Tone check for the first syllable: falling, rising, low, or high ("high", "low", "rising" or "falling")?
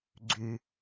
low